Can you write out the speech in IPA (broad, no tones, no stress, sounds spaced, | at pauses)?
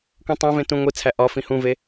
kʷ ĩ tˤ æ̃ v ẽ t ũ ŋʷ i t͡sʰ æ ʔ ɒ f ĩ h ũ v e